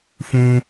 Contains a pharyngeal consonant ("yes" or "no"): no